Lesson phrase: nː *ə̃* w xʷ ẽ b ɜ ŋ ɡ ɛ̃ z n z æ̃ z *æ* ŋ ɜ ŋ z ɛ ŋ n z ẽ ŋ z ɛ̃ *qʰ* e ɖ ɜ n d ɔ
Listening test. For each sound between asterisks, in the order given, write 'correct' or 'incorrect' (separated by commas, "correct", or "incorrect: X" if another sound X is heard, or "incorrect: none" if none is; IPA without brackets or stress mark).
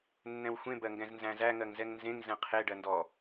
incorrect: ɛ̃, correct, correct